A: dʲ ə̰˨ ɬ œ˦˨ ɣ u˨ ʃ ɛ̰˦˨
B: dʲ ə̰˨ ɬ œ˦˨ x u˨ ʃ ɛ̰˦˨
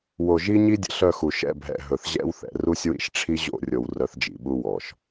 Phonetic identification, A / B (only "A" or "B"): B